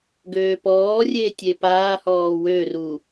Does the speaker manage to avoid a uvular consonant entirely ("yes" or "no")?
yes